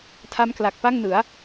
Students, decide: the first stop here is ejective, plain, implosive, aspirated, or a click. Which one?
aspirated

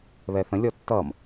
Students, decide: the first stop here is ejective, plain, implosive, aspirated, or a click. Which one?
plain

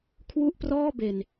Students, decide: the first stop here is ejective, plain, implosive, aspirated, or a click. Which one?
aspirated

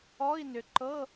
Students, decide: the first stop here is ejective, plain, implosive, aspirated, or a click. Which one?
click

